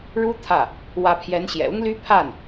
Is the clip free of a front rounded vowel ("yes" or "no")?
no